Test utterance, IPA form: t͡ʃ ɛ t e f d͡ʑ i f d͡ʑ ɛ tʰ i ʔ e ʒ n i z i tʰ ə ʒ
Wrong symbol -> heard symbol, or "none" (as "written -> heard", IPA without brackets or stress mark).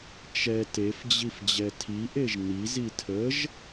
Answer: none